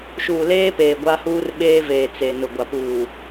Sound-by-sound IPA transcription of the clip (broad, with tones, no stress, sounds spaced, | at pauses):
ʃ uː˨ l eː˦ p eː˨ ɡʷ a˦ h uː˦ r ɓ eː˦ v eː˨ t͡s e˨ n ʊ˨ ɡʷ a˨ p uː˨